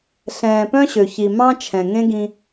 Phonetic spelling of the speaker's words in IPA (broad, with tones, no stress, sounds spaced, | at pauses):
ɬ ɛ̃ː˨ p œ̃˦ ɕ ø˨ ç i˨ m ɑ̃˦ t͡ʃʰ ɛ̃˨ ŋ ẽ˦ ɡ ĩ˦